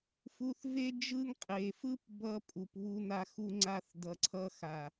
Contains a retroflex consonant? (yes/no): no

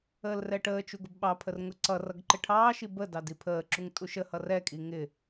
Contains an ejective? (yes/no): yes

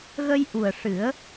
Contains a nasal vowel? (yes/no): no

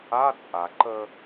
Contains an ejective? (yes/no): yes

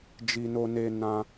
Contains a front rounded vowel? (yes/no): no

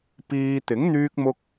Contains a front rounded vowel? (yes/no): yes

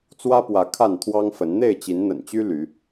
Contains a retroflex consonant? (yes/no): no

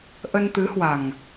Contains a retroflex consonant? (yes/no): no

